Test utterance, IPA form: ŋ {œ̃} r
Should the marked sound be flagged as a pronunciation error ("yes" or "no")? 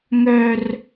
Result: yes